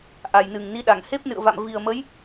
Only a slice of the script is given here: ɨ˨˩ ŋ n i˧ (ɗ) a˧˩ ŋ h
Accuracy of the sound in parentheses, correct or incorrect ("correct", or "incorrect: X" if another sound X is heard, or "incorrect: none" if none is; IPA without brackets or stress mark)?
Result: correct